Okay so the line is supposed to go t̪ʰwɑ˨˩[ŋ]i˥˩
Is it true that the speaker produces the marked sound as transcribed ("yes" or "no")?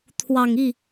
yes